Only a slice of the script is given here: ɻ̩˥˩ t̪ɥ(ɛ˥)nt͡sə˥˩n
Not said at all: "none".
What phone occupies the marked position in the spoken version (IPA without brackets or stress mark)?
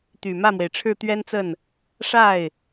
ɛ˥